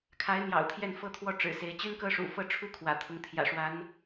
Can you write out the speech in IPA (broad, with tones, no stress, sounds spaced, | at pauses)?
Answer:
kʰ a˧˥ ɪ̯ n̪ j ɑ̰˨˩ ʊ̯ t̪ʰ j ɛ˥˩ n f ɤ˥ t̪ʰ w ɔ˥˩ ʈ͡ʂ ɻ̩˨˩ s e˧˥ ɪ̯ t͡ɕ y˥ n k ɤ˥ ʂ ṵ˨˩ f ɤ˥˧ ʈ͡ʂʰ u˥˩ kʰ w ä̰˨˩ t̪ʰ ʊ˧˥ ŋ t̪ʰ j ä̰˨˩ ʂ w a˧˥ n